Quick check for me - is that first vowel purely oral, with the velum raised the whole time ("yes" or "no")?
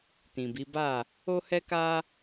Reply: no